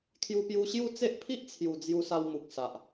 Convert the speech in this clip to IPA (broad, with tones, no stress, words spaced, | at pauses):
kʰju˧pju˧ɕju˥˧ t͡se˦ʔpʰi˦ʔt͡sʰju˨˩ d͡zju˧sa˧wmu˨k̚ sa˨ʔ